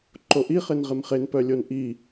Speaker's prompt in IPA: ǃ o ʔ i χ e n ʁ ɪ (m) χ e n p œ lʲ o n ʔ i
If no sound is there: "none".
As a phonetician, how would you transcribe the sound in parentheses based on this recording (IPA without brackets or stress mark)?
m